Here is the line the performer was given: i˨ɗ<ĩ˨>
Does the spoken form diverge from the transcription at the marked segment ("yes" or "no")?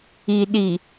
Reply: yes